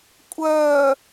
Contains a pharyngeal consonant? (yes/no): no